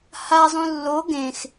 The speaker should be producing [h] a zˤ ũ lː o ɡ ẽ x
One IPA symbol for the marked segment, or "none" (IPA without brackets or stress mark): h